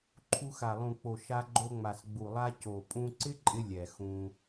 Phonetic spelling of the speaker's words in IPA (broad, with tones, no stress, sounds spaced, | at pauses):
ǃʰ u˧ x a˨ lˠ ũ˨ k͡p o˨ ʃ a˧ ɡ͡ǃ o˧ ŋ͡m a˨ s ɡ͡b u˨ lˠ a˧ c o˨ pʼ ũ˧ ǀ ɪ˦ ǃʼ ɪ˧ lʲ ɛ˨ x ũ˧